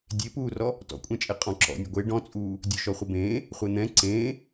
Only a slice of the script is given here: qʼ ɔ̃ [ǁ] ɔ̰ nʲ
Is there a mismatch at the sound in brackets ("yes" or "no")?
no